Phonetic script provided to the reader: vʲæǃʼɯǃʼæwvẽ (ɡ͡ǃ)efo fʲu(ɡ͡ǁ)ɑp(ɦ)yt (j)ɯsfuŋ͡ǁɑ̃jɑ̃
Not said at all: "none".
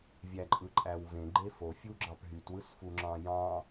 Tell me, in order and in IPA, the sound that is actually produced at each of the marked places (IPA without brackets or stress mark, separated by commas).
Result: ɡ͡ǃ, ɡ͡ǁ, ɦ, w